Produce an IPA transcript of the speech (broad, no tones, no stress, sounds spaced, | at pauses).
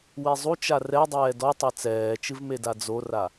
w e zˤ u t͡ʃ a r ɛ dˤ ɛː d ɔ tˤ a t͡s ɛː t͡ʃ ɨ v m e d a d͡z o r a